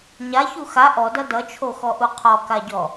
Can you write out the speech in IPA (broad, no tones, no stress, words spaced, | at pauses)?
ɲaçu xa ʔɔdʌ dʌt͡ʃʰoxɔʔu qʰɔkaɟɔ